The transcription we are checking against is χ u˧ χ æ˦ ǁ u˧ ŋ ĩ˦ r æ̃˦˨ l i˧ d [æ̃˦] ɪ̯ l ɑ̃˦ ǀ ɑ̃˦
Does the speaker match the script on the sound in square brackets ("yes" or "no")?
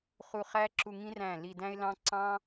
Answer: yes